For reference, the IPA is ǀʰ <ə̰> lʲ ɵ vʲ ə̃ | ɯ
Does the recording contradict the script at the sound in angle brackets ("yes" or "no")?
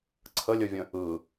yes